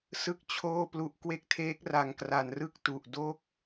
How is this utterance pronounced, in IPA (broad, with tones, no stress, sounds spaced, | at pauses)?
s ɯ˥˩ k̚ t͡ɕʰ oː˥˩ p l u˦˥ ʔ k w e˦˥ k̚ tʰ eː˦˥ k̚ r a˧ ŋ k r a˧ n r ɯ˥˩ k̚ t u˨˩ ʔ d o˦˥ k̚